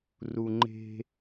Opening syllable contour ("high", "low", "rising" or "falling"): low